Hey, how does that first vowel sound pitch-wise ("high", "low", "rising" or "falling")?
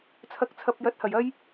rising